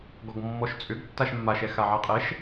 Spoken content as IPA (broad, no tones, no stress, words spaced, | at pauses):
ɡɔɡmːɔʃt͡sʼʏɡtːaʃ mːaʃɛ xaʕaqʼɛʃ